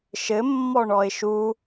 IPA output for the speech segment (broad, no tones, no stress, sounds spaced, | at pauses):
ʃ ɘ mː ɔ ɳ ɔ ɪ̯ ʃ u